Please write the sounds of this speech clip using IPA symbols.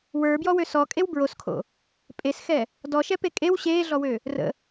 w ə˞ b j ɔ w ø s ɔ kʼ e w b ɹ o s kʰ o̰ | pʼ e s x ɛ | d ɔ ʃ ɛ p e kʼ e w ɕ eː ɮ ɔ w ø | r ə̰

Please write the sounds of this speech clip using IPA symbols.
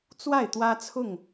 t͡s w a˥˨ ɪ̯ t̪ w ä˦ t͡sʰ ʊ˥˨ ŋ

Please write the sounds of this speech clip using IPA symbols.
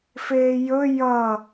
f eː j ɵ j ʌ

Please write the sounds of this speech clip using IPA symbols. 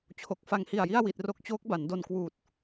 t͡ɕʰ o˨˩ k̚ f a˧ ŋ h i˨˩ a̯ j i˥˩ a̯ w i˨˩ t̚ r o˦˥ k̚ t͡ɕ oː˦˥ k̚ b a˩˦ n d o˧ n k w uː˨˩ t̚

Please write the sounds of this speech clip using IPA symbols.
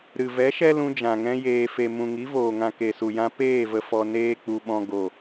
ɾ ɨ˨ v ɛ˨˦ ʃ ɛ˦ l ũ˧ d͡ʒ ã˨ ŋ ɛ̃˧ j eː˨ f e˨ m ũ˨ ŋ i˨˦ v oː˨ ŋ ã˨ k e˨ s u˨ j ã˧ p eː˦˨ v ə˨ f ɔ˨ n eː˦ k͡p u˧ ɓ ɔ̃˧ ɡ o˨

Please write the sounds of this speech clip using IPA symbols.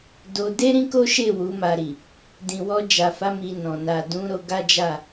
d o˧ d e˦ ɾ ĩ˦ k o˦ ʃ e˦˨ w u˨˦ m a˧ ɾ i˨ | d ĩ˨ w ɔ˧ d͡ʒ a˨ f a˨˦ m i˧ n ɔ̃˨ n a˨ d ũ˨˦ ɾ o˧ ɡ a˦ d͡ʒ a˦˨

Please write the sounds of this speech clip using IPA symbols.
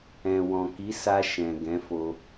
ɛ̃˨ w ɔ̃˨ k i˨˦ s a˧ ʃ ɛ̃˨ ɡ ɛ̃˨˦ f o˧

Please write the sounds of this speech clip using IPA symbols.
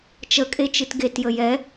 t͡ʃ ə kʼ e t͡ʃ ɨ t ɡ e t j ə j ɛ

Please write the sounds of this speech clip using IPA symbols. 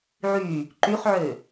ʕ y | ǃ y χ ʕ ø

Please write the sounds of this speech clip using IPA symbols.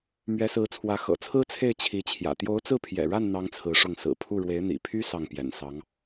m ɥ ɛ˧˥ s ɹ̩˧˥ t͡sʰ w ä˧˥ x ɤ̰˨˩ t͡sʰ ɹ̩˥ t͡sʰ e˥˩ ɪ̯ t͡ɕʰ i˧˥ t͡ɕʰ j ä̰˨˩ t̪ j o˧˥ ʊ̯ t͡s ɹ̩˥˩ pʰ j ɛ̰˨˩ ɻ a˥˩ n n̪ ɑ˥ ŋ t͡sʰ ɹ̩˧˥ ʂ ʊ˥˩ ŋ s ɹ̩˨˩ pʰ u˥˩ ɻ w e˧˥ ɪ̯ n̪ ḭ˨˩ pʰ y˥ s ɑ˥˩ ŋ p j ɛ̰˨˩ n s ɑ˧˥ ŋ

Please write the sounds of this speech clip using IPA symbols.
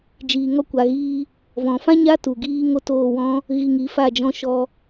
d͡ʒ iː˨ ŋ ɔ˧ kʷ a˨ ɣ iː˧ | v ɔ̃˨ f ã˦ ɲ a˦ t u˨ ɡ iː˦ ŋ o˦ t oː˦˨ w ɔ̃˦ | ɣ i˧ ŋ i˨˦ f a˦˨ d͡ʒ ɔ̃˧ ʃ ɔ˧

